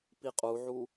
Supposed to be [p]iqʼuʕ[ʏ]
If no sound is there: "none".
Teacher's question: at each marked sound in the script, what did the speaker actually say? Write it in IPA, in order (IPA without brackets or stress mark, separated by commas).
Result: p, u